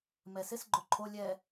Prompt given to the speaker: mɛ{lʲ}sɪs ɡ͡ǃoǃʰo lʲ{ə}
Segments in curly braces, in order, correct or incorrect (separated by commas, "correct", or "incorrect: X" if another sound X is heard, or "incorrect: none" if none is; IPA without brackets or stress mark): incorrect: none, incorrect: ɛ